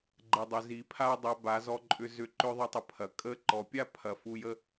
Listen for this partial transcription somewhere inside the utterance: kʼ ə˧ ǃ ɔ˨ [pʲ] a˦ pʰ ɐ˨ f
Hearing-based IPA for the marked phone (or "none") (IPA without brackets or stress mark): pʲ